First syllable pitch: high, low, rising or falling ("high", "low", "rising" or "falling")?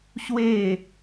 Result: falling